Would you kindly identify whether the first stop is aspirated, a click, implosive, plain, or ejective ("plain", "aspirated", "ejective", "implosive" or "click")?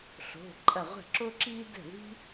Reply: click